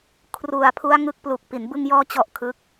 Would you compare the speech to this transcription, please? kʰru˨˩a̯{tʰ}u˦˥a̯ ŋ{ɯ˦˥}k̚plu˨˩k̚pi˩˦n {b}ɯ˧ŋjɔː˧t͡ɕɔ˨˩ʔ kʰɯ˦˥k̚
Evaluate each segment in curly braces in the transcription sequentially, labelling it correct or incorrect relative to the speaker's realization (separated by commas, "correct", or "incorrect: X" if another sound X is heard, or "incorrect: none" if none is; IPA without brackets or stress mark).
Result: incorrect: pʰ, correct, correct